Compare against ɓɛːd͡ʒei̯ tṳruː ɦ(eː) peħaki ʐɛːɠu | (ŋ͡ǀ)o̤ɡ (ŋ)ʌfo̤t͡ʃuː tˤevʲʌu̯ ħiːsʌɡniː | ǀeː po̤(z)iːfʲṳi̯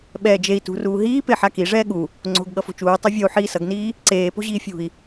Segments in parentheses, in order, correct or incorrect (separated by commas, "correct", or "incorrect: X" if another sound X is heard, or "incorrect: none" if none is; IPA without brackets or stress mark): incorrect: iː, correct, incorrect: ɠ, incorrect: ʑ